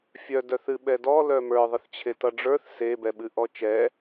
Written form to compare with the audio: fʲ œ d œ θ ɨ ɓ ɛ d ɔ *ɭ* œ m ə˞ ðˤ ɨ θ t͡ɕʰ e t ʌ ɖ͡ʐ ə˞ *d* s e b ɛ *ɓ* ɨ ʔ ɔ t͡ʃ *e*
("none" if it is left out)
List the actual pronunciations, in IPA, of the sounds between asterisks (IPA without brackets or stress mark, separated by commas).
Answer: l, θ, ɓ, ɛ